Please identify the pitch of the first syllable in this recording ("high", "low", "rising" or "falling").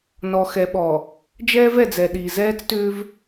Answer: low